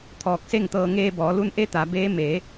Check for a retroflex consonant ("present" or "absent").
absent